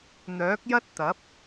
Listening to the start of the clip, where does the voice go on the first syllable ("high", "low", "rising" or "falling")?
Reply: rising